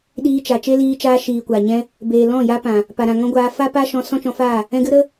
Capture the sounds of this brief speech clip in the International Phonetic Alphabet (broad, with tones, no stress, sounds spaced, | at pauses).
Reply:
ɗ iː˧ t͡ʃ a˨ t͡ʃ e˦ l iː˧ t͡ʃ aː˧ ʃ iː˨ kʷ a˨ ɲ ɛ̃˦ | b eː˨ l ɔ̃˦˨ j a˦ p ã˨ | p a˨ ɾ ã˨ ŋ ɔ̃˦ ɡʷ aː˧ f a˦ p a˦ ʃ ɔ̃˧ s ɔ̃˦ t͡ʃ ɔ̃˧ f aː˦˨ | ɛ̃˧ ɡ ɨ˦ ɾ ə˦